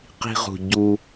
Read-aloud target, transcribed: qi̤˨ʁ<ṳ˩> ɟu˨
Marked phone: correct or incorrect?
correct